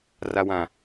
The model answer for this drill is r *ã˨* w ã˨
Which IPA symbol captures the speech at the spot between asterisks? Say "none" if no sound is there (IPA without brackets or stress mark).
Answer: a˨